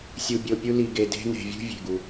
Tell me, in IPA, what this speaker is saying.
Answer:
sʲ u˨ bʲ o˨ pʲ u˦ l i˨ ɡ e˨ d e̤˦ n e̤˨ vʲ ṳ˦ vʲ e̤˩ ɡ u˩

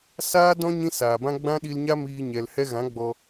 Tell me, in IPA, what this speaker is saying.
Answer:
s aː˦ d ɔ̃˦ ɲ ĩ˦ s aː˨ b ã˦ ɡ͡b ã˦ ɗ i˧ l ɲ a˦ m iː˧ ɲ ɛ˨ l h ɛ˧ ɣ ã˨˦ ɡ͡b ɔ˧

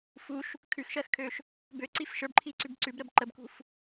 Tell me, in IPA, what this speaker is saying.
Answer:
f u ʃ | kʰ ʉ x ʃ ɜ x kʰ ø ʃ | b ø ǀ i f ʃ ə˞ b ǃʰ i ǀ ʉ b ǀ ʉ b ɾ ə b ǃ ə b k ṳ f

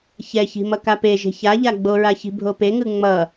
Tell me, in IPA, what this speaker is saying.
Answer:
ç ɛ ç i̤ m ʌ k a p e ʒ e̤ ç a ʎ a ɡ͡b o ɹ a ç i̤ bʱ o p e ŋ ɯ ŋ͡m ʌ

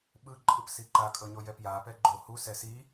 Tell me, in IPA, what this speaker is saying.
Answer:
ɓ ɯ ǃʼ ɯ p s i ǃ a kʼ ɤ ɲ o j ɛ p j a p ɛ ɡ͡ǃ o h u s ɛ s i

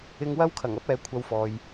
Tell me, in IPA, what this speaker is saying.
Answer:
ɪ˧ ŋ w ɐ˥ w kʰ ɐ˨˩ ŋ ɐ˥ p̚ ɛː˨˥ kʷʰ ɐ˧ w f ɔː˨ j

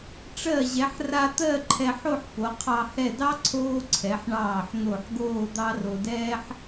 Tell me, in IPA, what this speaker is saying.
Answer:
ʈ͡ʂ ɜ˧˩ ʑ ɛ˩˧ ħ r a˧ t̪ ɜ˥˧ ǃʰ ɛ˧ ħ o˥˧ ħ p o˩˧ qʰ ɑ˧ h ɛ˧˩ d ɑ˥ ǀʰ oː˥ ǀʰ ɛ˩˧ ħ ɳ ɑː˧˩ ħ n̪ o˧˩ ħ ɡ oː˥˧ d̪ ɑ˥ r o˧ d ɛː˥ ħ

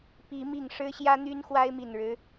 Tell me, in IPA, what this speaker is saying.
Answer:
p i˨˦ m i˨˩ ŋ ʂ ɻ̩˦ ɕ j ä˦ n̪ y˦ n x w a˦ ɪ̯ m i˨˩ n ɻ ɻ̩˦

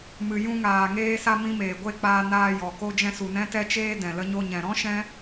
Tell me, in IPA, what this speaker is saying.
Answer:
m ɨ˨ j ũ˧ ŋ aː˨ ŋ eː˧ s a˧ m ĩ˧ m eː˨ ɡʷ e˦˨ k͡p aː˧ n aː˧ j ɔ˨ k o˧ d͡ʒ ɛ̃˧ s u˨ n ɛ̃˧ t ɛ˧ t͡ʃ eː˧ d ɛ̃˨ l ə˧ ɲ o˧ ɲ ɛ̃˨ ɾ ɔ̃˦ ʃ ɛ̃˦

